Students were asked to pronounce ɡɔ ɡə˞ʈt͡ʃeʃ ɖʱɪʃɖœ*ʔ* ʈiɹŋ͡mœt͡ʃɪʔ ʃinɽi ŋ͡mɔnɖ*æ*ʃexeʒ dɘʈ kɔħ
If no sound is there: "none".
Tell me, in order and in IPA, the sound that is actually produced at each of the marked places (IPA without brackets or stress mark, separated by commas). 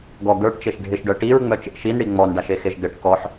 none, a